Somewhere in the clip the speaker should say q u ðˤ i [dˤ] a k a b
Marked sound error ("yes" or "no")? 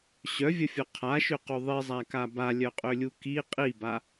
yes